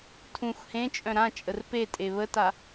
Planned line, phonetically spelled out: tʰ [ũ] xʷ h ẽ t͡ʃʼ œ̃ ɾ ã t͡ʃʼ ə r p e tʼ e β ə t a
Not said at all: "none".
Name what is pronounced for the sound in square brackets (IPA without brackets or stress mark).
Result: ũ